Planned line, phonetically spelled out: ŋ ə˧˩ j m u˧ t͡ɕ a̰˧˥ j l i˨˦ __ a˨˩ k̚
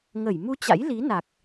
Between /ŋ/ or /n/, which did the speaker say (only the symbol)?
n